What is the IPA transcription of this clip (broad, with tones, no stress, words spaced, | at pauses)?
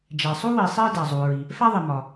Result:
d͡ʒæ˩sˤu˥wi˩ sˤi˥dæ˩zˤu˩ ɹi˩ | fæ˥ðˤi˩ mɒ˩